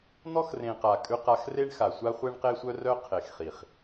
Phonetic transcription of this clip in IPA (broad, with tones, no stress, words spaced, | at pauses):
n̪ɔ˦xrẽ˨qa˨ kʼʉ˦qa˦x re˦ɳxa˨sʷa˦ χʷe˦ɳqe˦sʷœ˦rœ˦ qʰe˨xχi˨χ